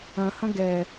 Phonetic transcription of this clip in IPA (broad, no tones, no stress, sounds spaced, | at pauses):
ɐ̃ h ɐ̃ ɡ ɛ